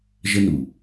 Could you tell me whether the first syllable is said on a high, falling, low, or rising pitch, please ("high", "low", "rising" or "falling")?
high